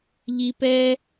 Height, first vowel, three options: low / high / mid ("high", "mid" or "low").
high